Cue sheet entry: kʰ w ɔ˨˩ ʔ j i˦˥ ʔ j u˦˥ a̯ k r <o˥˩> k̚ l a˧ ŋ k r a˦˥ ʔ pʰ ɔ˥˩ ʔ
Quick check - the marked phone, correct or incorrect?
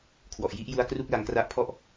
incorrect